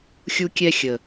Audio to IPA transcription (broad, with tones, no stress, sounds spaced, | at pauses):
xʲ u˦ kʲ ɛ˦ xʲ ə˨